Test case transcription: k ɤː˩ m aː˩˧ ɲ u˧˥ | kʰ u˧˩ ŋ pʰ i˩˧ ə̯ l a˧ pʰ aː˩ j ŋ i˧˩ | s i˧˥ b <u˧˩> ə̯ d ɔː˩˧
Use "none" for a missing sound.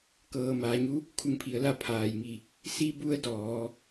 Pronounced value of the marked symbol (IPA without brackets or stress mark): u˧˥